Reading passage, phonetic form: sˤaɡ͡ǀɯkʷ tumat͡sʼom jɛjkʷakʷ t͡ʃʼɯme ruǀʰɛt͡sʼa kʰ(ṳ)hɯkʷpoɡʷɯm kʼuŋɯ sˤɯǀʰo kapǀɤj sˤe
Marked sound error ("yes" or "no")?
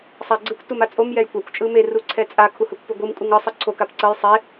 yes